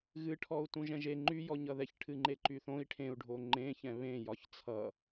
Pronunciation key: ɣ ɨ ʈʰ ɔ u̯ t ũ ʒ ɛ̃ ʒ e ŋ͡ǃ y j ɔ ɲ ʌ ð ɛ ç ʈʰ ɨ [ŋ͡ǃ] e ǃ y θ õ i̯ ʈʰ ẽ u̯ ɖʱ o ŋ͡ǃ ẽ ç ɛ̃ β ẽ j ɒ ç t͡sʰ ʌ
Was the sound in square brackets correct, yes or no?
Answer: yes